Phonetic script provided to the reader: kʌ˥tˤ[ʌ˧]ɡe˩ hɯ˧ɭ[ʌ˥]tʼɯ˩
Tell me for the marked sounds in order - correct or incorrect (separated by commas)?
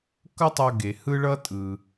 correct, incorrect